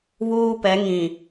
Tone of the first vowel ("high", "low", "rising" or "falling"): high